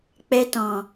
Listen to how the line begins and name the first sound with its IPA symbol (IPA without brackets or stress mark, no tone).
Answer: k͡p